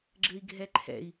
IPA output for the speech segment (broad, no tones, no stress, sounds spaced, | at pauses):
ɡ͡ǁ ɘ i̯ ɡʱ ɛ ǃʰ ɛ̰ i̯